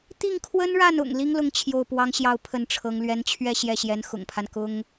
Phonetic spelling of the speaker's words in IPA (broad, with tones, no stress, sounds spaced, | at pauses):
t̪ i˥˩ ŋ kʰ w ə˥ n ɻ a˥˩ n ʊ̰˨˩ ŋ l i˥ ŋ l ʊ˥˧ ŋ t͡ɕʰ j o˥˩ ʊ̯ p w ɑ˥ ŋ ɕ j ɑ˥˧ ʊ̯ pʰ ə˥˩ n ʈ͡ʂʰ ɤ˧˥ ŋ l ɥ ɛ˧˥ n t͡ɕʰ ɥ ɛ˥˧ ɕ j ɛ˥˩ ɕ j ɛ˧˥ n x ʊ̰˨˩ ŋ pʰ a˦ n k ʊ˥ ŋ